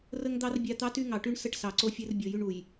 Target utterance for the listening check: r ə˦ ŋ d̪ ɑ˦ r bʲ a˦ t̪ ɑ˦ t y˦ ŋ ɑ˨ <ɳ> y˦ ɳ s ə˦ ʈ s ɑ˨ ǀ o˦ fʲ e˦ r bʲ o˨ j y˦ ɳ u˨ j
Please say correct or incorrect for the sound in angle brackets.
incorrect